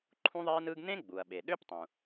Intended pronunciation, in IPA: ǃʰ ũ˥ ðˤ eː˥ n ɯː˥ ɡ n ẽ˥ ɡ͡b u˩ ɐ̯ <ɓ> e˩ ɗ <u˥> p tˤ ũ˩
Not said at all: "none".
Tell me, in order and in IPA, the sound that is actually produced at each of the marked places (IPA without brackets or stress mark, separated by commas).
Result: ɓ, ø˥